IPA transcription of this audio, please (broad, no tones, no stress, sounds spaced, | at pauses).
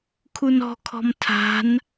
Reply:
kʰ u n ɔ̤ kʰ ɔ̤ m tʰ a̤ n